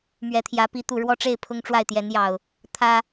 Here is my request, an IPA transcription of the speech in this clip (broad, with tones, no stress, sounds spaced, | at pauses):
m ɥ ɛ˨˦ t̪ʰ j ä˨˦ p i˨˦ t̪ u˨˩ ɻ w ɔ˥˨ ʈ͡ʂ e˥˨ ɪ̯ pʰ ʊ˦ ŋ ʈ͡ʂ w a˥˨ ɪ̯ t̪ j ɛ˨˦ n j ɑ˨˩ ʊ̯ | t̪ʰ ä˦